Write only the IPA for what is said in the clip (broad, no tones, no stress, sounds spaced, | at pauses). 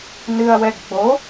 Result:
n ɨ ɐ̯ w ɛ ɡ ɡ͡b o